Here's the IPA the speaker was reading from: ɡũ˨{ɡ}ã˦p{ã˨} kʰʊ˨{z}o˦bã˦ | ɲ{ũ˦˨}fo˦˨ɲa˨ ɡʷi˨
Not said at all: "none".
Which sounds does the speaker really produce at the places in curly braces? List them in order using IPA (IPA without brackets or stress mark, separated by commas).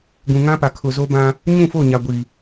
ŋ, a˨, z, ũ˦˨